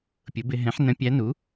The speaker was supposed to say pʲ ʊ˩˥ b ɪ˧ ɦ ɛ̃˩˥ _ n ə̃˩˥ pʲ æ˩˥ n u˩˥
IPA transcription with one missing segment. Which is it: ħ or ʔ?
ħ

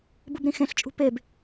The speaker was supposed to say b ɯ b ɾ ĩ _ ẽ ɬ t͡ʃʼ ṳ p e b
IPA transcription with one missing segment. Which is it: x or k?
x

